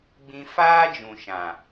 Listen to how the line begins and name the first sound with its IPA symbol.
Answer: ɡ͡b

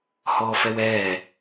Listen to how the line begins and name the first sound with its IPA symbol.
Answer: h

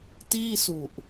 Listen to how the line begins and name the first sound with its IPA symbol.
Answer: t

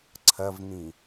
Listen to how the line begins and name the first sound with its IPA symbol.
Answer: ǀʰ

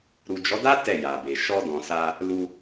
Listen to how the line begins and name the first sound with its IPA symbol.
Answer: ɾ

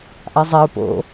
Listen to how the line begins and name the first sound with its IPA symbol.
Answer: ʔ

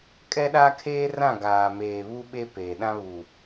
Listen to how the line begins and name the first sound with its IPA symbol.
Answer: kʼ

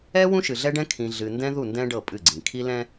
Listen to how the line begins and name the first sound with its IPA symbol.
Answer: ɛ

